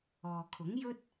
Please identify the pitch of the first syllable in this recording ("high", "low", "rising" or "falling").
low